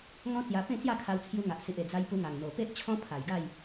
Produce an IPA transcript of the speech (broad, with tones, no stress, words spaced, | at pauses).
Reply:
ŋɔ̃˦t͡sja˧ pẽ˥˧t͡sja˥˧ kʰa˧wt͡sʰju˧ŋa˨ʔ si˨ʔe˨˩ d͡za˧j pu˧ŋa˨˩ŋn̪o˨˩pe˦ʔ t͡ɕʰɔ̃˦ pʰa˨˩jɡa˥˧j